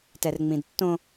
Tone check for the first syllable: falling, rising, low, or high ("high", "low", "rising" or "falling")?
low